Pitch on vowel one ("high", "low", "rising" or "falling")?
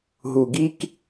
low